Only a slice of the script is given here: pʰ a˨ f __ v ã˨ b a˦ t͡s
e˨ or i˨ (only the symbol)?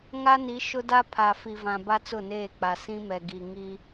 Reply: i˨